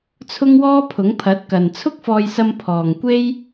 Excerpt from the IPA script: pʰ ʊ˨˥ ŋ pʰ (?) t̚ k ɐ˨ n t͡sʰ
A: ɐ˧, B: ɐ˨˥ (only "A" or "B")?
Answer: B